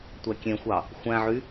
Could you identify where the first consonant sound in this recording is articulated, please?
alveolar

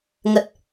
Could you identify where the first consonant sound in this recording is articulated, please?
velar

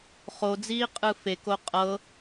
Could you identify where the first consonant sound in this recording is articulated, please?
uvular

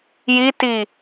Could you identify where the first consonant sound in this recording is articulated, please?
palatal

